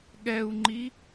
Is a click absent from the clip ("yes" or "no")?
no